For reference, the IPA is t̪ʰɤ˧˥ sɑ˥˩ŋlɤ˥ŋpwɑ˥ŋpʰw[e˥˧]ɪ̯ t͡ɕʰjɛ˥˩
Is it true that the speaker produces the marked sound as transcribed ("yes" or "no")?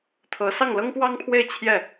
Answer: yes